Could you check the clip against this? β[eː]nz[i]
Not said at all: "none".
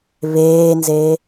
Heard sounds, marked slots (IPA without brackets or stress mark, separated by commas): eː, e